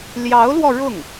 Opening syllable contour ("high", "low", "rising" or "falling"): rising